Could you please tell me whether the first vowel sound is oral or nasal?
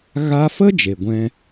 oral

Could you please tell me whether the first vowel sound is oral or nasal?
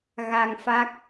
oral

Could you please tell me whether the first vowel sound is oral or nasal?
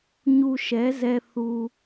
oral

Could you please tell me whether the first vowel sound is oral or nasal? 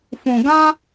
nasal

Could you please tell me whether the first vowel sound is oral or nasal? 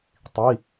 oral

